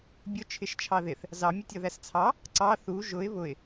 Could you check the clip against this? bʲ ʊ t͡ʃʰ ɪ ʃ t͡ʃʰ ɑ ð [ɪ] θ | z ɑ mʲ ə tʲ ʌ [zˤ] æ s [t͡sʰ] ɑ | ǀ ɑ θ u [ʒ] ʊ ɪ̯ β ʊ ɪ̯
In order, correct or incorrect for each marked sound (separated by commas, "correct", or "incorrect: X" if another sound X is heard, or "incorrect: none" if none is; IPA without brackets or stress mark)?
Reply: correct, incorrect: ð, correct, correct